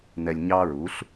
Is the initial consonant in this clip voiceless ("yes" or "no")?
no